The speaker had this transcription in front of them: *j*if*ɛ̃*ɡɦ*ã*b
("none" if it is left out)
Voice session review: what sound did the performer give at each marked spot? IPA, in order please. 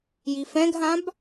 j, ɛ̃, ã

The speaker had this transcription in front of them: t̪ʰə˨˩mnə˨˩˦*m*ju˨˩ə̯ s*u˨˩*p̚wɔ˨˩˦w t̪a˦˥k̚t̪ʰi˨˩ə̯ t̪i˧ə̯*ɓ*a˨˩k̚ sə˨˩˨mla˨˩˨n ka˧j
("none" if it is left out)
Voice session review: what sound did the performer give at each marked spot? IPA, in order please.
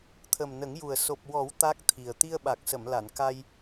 ŋ, o˨˩, ɓ

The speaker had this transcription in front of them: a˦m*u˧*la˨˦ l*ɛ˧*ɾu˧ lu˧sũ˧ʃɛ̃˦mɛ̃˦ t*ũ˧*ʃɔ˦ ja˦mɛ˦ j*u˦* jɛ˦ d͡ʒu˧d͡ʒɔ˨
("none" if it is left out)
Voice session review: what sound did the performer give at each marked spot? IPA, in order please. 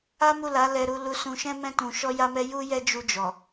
u˦˨, ɛ˧, ũ˧, u˦

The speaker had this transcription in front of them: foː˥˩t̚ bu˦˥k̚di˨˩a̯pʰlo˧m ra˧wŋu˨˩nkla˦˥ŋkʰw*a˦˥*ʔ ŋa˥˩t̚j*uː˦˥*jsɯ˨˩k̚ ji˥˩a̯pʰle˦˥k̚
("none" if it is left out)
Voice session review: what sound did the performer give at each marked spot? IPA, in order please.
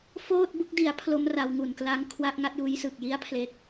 a˦˥, uː˦˥

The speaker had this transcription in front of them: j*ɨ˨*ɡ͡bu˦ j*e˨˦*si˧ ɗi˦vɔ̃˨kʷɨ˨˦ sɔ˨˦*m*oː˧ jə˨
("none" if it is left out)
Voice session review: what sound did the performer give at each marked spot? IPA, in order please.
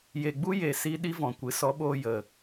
e˨, e˨, ɓ

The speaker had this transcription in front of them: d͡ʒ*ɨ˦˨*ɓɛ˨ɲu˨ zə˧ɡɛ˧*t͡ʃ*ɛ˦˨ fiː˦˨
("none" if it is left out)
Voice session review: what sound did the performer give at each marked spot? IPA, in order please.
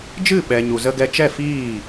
ɨ˦˨, t͡ʃ

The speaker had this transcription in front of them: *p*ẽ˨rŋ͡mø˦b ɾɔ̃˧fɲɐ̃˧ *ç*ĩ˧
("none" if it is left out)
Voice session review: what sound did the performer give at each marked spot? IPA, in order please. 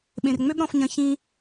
ɓ, ç

